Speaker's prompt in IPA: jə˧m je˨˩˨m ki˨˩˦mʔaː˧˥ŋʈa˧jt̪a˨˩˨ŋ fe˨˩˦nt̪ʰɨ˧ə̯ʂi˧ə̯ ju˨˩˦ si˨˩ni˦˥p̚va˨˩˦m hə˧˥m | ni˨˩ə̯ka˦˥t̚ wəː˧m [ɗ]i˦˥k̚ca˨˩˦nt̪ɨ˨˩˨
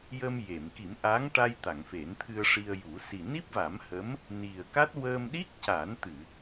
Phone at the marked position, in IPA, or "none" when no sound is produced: ɗ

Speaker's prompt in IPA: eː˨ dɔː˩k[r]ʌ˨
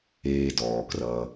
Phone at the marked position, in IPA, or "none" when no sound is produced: r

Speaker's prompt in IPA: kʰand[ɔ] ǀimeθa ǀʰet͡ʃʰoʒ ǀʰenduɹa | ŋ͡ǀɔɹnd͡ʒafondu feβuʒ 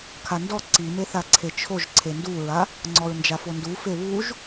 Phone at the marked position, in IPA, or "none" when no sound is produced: ɔ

